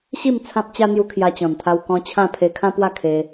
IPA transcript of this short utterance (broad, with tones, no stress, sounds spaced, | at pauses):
ɕ i˥˧ m t͡sʰ ã˦ p̚ t͡ɕ a˦ n̪ j u˧ kʰ j a˧ t͡ɕ ɔ̃˨˩ n t̪ʰ a˧ w k ɔ̃˧ t͡ɕʰ ã˥˧ pʰ e˧ kʰ ã˦ p w a˥˧ kʰ e˧